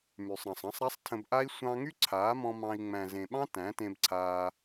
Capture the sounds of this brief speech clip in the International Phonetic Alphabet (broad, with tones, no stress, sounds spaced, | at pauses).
m y˨ sˤ ɾ ɑ̃˨ sˤ ɑ̃˦ sˤ ɾ a˦ sˤ tʰ ə̃˧ b ʔ a˦ i̯ sʷ ɑ̃˧ ŋ y˦ ǀʰ aː˨˦ m ɔ̃˧ m ɑ̃˧ i̯ ŋ͡m æ̃˨ z ẽ˨ ɓ ɑ̃˦ t æ̃˨˦ t ẽ˧ b ǀʰ aː˧